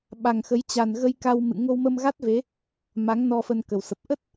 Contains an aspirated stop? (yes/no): no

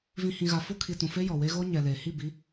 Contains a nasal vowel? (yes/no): yes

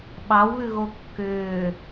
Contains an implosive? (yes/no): yes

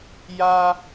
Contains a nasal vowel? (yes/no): no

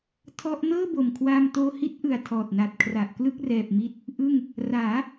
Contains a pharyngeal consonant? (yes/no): no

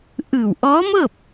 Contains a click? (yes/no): no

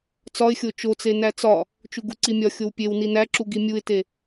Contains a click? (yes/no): yes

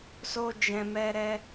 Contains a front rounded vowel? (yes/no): no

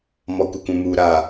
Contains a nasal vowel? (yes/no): yes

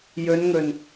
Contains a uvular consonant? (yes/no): no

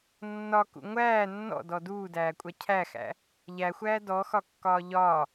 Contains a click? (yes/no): no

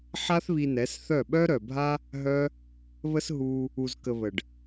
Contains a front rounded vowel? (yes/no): yes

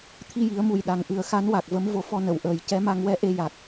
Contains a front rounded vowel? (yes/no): no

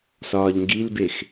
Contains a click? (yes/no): no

